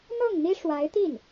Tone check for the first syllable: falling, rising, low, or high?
falling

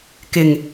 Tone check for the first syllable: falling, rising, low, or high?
low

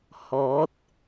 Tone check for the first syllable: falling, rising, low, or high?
rising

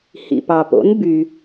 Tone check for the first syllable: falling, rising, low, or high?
low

